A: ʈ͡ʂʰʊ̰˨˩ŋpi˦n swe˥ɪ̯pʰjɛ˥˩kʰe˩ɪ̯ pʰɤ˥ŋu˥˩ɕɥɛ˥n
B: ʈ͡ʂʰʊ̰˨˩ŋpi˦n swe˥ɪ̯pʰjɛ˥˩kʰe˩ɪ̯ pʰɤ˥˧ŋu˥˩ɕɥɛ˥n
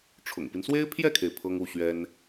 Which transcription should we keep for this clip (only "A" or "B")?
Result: A